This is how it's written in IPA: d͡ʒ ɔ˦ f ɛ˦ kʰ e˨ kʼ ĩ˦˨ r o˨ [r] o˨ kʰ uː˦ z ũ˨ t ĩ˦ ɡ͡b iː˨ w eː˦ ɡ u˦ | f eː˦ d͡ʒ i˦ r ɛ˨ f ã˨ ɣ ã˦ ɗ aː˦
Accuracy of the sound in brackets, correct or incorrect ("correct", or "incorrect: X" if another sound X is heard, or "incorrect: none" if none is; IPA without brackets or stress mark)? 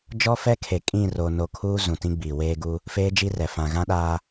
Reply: incorrect: n